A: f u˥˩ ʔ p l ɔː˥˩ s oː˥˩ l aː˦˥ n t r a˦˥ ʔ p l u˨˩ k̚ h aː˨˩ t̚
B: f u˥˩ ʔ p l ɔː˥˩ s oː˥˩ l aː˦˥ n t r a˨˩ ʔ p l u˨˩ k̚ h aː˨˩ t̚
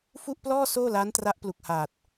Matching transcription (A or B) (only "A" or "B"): A